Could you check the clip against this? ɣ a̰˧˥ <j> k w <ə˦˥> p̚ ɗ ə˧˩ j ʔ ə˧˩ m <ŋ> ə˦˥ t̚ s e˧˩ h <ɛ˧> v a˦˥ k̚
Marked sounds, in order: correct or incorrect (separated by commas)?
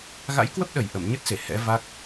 correct, correct, incorrect, incorrect